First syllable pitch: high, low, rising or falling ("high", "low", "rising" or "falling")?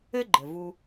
high